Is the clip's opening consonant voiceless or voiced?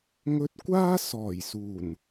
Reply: voiced